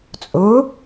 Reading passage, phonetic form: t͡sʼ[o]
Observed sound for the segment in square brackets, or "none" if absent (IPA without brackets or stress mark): ɵ